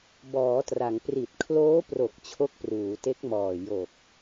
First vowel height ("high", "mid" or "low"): mid